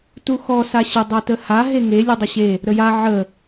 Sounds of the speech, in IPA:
t u x ɔ s a ɕ ə dˤ o t ə h a ɦ e ŋ e lʲ u dˤ ə ɕ e | ɾ ə j a ʕ ə

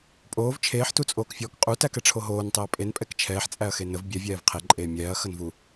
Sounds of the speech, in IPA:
pʼ oː v t͡ʃʰ eː ħ t u t͡sʼ oː k fʲ ɔː k qʼ u t æ k ɛ ʈ͡ʂʰ o ɦ oː n tˤ e ɐ̯ pʼ e n pʼ ɛ k t͡ʃʰ ɛː ħ t͡sʼ æ ɐ̯ x e n ə v bʲ ɛ vʲ ɛː v qʰ e ǃʼ eː mʲ ɛː ɐ̯ x ə n v u

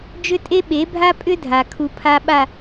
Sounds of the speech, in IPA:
d͡ʒ ʏ˦ tʼ e˦ ɓ e˨˦ bʱ a˦ pʼ ʏ˦ dʱ a˨ kʰ u˨ pʰ a˨ ɓ a˨

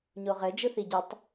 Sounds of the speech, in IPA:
ɲ o ʁ ɘ d͡ʒ ɯ θ i ɟ ɯ tˤ

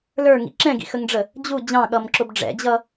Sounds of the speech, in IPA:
l ə˞ ŋ ḭ ǁ ɛ̃ ɡ ḭ x ə ŋ ɖ͡ʐ ə | d͡ʑ u d͡ʑ ɑ̃ ɠ ʌ m ǁ ʊ b ɖ͡ʐ ɛ̰ d͡ʑ ʌ

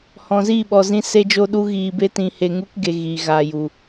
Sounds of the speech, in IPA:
h ɔ̃˨ z iː˦˨ ɓ ɔ˨ z ĩ˧ s e˦ d͡ʒ o˦ ɗ u˦ ɣ iː˧ b e˦ t ĩ˧ h e˧ ŋ u˦ k ɡ e˧ ɣ iː˨ ɣ aː˨ j u˨

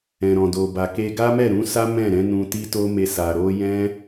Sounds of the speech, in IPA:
ɛ̃˨ ɾ ɔ̃˨ d o˨ b a˨ k e˧ ɡ a˦ m ɛ˦˨ ɾ ũ˨˦ s a˦ m ɛ̃˦˨ ɾ ɛ̃˨˦ n ũ˧ t i˦ t o˦ m e˧ s a˨ ɾ o˧ j ɛ̃˦

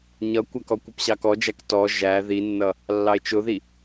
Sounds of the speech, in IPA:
ɲ ʌ kʷ æ k ɔ kʷ ə p ɕ ɑ k ɔ d͡ʒ æ k t ɔ ʒ æ ð i nː ʌ | lː ɑ e̯ t͡ʃ ʊ ð i

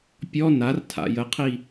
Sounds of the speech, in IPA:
pʲ ɔ n a r tʰ a̰ j ə qʰ i

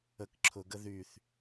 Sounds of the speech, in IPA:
ə k ǁʰ ʊ ɡ ə ð y θ

